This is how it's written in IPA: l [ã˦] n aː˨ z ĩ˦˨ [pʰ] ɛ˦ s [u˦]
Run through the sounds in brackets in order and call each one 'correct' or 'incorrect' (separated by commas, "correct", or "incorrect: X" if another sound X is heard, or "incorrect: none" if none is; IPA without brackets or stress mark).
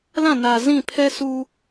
incorrect: ã˦˨, correct, correct